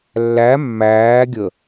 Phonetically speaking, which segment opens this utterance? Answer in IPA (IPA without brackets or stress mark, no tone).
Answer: lː